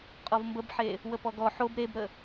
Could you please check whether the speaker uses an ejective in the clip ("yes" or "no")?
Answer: yes